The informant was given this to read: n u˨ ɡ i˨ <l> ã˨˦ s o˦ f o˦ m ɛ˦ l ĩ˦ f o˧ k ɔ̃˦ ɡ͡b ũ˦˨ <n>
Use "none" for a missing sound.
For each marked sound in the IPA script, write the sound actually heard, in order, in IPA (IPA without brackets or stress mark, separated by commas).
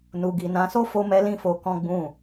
n, none